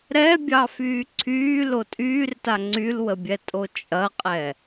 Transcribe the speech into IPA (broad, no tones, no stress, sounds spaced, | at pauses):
ɾ ɛ bʲ ɑ f yː ǀʰ yː l o tʼ yː r t a ŋ͡ǀ y l w ə bʲ ɛ tʼ o t͡ʃʼ ɐ qʼ ɛ